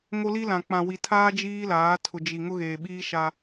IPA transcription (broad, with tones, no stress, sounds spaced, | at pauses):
ŋ o˦ l i˦ l ã˨ k͡p ã˨ w i˨ tʰ aː˦ d͡ʒ iː˦ l aː˨˦ tʰ ʊ˨ d͡ʒ i˨ ŋ ʊ˦ ɣ eː˨ ɓ iː˦ ʃ a˦